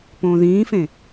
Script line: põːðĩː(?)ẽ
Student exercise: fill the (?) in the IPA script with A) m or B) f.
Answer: B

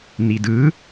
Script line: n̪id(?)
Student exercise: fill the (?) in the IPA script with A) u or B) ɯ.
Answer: B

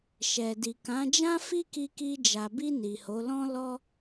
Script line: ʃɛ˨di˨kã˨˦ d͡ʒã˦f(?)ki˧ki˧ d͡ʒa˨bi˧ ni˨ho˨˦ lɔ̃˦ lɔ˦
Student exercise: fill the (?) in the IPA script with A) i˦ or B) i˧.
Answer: A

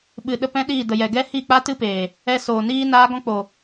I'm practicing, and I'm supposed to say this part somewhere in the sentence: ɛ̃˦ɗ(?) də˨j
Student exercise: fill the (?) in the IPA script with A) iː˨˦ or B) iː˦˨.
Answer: B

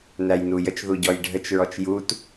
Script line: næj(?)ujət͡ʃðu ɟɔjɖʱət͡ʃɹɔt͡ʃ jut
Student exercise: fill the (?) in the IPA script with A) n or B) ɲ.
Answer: A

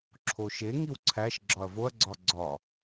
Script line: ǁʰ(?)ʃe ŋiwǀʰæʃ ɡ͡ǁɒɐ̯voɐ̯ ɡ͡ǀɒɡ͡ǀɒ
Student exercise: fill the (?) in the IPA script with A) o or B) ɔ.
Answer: A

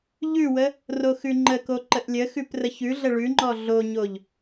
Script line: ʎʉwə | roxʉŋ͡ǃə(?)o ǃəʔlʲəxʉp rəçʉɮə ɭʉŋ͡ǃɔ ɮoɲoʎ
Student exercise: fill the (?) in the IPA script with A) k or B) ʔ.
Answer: A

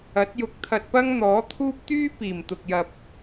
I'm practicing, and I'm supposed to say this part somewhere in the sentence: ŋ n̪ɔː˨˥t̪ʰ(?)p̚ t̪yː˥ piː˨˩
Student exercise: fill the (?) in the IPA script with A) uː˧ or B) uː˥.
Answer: B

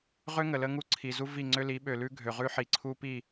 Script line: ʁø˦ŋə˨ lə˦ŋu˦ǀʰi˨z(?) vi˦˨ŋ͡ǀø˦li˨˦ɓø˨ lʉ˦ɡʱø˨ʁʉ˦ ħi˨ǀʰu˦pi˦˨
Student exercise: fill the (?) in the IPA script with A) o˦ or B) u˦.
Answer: B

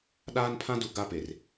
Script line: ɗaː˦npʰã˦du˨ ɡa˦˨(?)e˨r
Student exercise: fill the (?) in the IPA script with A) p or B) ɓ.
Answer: A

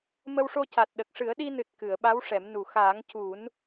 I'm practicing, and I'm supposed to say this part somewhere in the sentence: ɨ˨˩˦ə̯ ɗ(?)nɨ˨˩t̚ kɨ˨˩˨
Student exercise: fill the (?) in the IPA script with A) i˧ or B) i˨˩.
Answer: A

